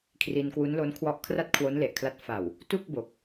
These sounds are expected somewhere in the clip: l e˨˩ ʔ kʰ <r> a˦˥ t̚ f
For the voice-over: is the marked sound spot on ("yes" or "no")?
no